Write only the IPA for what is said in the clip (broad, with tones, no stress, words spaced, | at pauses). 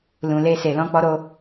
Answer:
lũ˧le˦se˧ lɔ̃˦k͡pɔ˦ɾo˦